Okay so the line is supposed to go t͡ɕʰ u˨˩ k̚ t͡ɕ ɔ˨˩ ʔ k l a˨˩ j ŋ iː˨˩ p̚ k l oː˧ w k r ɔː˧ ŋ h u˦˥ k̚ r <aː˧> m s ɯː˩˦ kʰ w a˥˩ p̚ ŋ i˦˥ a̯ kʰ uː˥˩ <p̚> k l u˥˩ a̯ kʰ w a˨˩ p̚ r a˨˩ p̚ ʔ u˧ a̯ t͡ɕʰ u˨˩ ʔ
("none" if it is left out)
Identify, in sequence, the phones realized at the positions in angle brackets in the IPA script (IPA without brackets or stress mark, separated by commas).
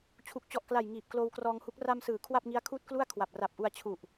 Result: a˧, t̚